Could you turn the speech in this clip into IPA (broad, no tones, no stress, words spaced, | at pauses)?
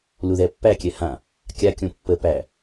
luðɛpːækʲɛ hã | kʲakʲõ pːə pæ